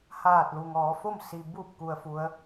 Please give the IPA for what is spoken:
h aː˧˩ t̚ l u˩ ŋ ɔː˩˧ f o˥˨ m s i˩ b u˧˩ p̚ k u˩ ə̯ f u˩˧ ə̯

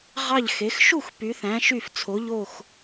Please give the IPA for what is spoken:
ʁ ɑ˧˩ ʎ x e˩˧ x ʃ u˥˩ x p y˩˧ θ æ̃˩˧ ʃ y˧˩ f t͡sʰ o˩˧ ʎ o˧˩ x

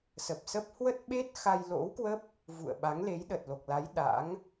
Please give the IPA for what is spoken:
s ə˨˩ p̚ s ə˦˥ p̚ h w ə˦˥ t̚ ɓ e˦˥ t̚ x a˧ j l o̰˧˥ w k w ə˦˥ p̚ | v ṵ˧˨ ə̯ ɓ a˨˦ ŋ l e˨˦ j ɗ ə˨˩ t̚ l o˨˩ k̚ l a˨˦ j ɗ a̰˧˥ ŋ

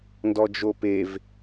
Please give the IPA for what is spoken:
n d ɔ d͡ʒ o p e v

